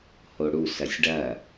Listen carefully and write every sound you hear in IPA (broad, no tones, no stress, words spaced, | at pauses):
hoɽu sɐsʲɖɐ